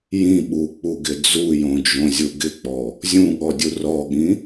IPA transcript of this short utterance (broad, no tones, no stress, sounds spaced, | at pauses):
j ĩ ɓ u k͡p u ɡ ɪ d͡z u j õ d͡ʒ õ zʲ u ɡ ɪ k͡p ɔ | zʲ ũ ɠ ɔ dʲ u r ɔ ɠ ĩ